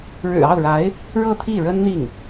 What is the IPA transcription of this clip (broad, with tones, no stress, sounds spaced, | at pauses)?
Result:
ɻ ɻ̩˨˩ ɑ˥˩ ʊ̯ ɻ a˧˥ ɪ̯ | ɻ ɤ˥˧ t̪ʰ i˥˩ ɻ ə˥ n n̪ i˥˩ ŋ